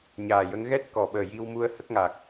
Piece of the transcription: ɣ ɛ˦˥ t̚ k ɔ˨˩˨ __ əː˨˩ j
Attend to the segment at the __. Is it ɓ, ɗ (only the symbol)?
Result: ɓ